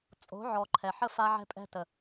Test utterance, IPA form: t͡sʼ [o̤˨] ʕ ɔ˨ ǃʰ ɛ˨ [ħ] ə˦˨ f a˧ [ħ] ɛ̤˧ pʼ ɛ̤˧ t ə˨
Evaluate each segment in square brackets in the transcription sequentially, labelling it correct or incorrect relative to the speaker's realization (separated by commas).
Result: incorrect, correct, incorrect